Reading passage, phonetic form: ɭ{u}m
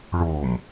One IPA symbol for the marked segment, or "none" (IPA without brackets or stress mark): o